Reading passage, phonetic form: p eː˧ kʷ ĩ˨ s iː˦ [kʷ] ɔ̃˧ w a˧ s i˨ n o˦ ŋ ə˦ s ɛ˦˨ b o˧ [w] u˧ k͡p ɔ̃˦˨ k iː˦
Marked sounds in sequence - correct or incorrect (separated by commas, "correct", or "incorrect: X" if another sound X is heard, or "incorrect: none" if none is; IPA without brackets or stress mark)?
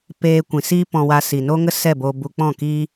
incorrect: p, incorrect: b